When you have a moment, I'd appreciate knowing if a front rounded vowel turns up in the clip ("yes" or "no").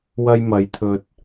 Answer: no